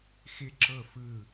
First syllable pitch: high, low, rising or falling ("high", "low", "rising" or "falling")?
falling